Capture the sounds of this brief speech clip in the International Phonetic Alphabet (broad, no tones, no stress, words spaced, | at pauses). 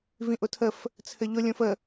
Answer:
vĩʔʊtʰəf | t͡sʰɘʎʊ lʲõfə